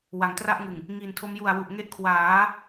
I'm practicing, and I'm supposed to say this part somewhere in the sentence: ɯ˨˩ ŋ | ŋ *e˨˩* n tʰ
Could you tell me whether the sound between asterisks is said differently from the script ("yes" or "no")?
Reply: yes